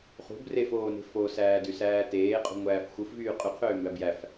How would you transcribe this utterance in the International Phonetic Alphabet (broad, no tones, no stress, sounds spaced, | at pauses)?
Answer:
χ ṳ b r e f oː n e̤ f o s æː d y s æː t eː qʼ ṳ ŋʷ æː f xʷ ɯ f v yː qʼ y qʰ øː m b æ b j æ f